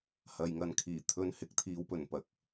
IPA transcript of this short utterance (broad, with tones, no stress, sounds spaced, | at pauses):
h ɐ˨ j ŋ ɐ˨˧ n kʰ iː˨˩ t̪ʰ ɵ˧ n h ɪ˨˥ k̚ t̪ʰ iː˨˧ w p ɵ˨˩ n p ɐ˨˥ k̚